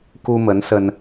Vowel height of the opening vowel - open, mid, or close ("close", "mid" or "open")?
close